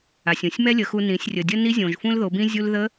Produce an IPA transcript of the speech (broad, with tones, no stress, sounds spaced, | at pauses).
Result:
a˩ sʲ ũ˩ sʲ m ɛ˥ lʲ ə˩˧ x u˧ n ĩ˩˧ sʲ rʲ ə˩ dʲ ə˥ n i˧˥ zʲ õ˩ ʒ f ũ˥ l ð o˩˧ b ĩ˥ zʲ u˧ l ð ə˧˥